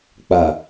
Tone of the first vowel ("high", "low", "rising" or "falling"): low